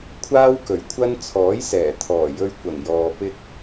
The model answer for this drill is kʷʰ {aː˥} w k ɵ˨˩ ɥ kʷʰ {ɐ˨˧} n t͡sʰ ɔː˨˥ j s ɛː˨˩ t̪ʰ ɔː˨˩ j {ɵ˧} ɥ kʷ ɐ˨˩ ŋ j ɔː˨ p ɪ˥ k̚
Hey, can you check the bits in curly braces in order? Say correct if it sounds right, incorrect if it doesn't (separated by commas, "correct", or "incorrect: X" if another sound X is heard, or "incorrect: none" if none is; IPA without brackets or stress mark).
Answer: correct, incorrect: ɐ˥, correct